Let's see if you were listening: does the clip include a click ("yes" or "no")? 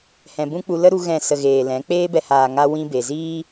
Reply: no